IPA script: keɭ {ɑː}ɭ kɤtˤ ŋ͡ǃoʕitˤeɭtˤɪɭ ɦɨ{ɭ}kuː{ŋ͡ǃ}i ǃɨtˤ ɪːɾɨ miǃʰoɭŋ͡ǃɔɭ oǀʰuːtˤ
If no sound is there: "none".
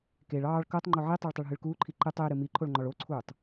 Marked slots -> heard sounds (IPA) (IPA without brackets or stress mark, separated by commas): ɑː, ɭ, ǃʰ